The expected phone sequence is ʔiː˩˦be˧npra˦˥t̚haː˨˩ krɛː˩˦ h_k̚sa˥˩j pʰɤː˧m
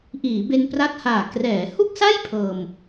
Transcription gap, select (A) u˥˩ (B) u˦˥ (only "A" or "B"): A